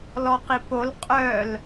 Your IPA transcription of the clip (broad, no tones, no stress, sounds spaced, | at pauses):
l ɔ q i p o l qʼ œ l